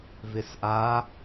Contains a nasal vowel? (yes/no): no